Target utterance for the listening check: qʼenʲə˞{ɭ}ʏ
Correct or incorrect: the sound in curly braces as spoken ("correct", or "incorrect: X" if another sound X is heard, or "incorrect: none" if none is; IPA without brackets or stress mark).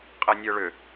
correct